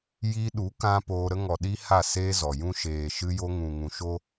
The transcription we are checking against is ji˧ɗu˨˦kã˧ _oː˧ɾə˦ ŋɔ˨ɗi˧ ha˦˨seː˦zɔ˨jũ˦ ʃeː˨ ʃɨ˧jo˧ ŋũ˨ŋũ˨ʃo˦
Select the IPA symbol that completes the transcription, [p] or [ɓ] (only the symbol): p